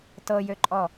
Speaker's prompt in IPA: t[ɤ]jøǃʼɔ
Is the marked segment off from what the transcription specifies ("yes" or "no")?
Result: no